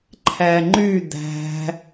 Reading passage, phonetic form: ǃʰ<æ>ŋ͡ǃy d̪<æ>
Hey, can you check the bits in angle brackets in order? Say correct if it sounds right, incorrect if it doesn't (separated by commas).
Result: correct, incorrect